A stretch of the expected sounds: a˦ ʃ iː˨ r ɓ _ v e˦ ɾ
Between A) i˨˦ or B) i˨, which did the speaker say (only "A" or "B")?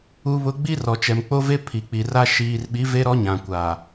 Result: A